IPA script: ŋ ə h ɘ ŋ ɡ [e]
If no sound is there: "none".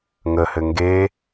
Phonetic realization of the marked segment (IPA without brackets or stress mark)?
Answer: e